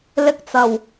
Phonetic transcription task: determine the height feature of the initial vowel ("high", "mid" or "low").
high